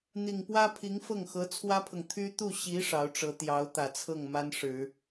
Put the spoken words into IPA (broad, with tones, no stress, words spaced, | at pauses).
n̪i˨˩ŋpwä˥ pʰi˧˥ŋfɤ˥˩ŋxɤ˧˥ t͡sʰwä˥pʰɤ˨ŋ t̪ʰy˥ t̪u˥˩ ɕi˧˥ ʂɑ˧˥ʊ̯ʈ͡ʂɤ˧˥ t̪jɑ˧˥ʊ̯t̪ä˨˩t͡sʰɤ˥˩ŋ ma˥nʂɻ̩˨˩˦